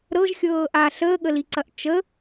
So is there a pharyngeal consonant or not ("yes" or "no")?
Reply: no